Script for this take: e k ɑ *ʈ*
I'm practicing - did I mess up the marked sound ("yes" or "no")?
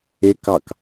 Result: yes